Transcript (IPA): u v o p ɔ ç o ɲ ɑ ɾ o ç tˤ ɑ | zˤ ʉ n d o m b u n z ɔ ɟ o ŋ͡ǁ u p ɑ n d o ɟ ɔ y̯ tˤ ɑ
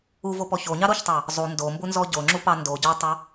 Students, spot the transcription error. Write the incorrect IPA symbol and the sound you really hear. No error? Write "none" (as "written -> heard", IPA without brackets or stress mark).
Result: ʉ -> u